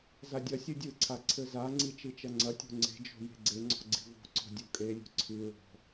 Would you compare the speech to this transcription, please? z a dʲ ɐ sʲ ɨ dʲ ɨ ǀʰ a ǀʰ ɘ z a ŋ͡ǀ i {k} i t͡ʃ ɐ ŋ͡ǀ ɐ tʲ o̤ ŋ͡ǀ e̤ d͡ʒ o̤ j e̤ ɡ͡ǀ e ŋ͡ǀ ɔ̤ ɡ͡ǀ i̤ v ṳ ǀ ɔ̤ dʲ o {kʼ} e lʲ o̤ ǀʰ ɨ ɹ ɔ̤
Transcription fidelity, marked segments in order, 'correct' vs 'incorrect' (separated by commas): incorrect, correct